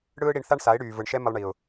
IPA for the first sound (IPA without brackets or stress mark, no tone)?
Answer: ɽ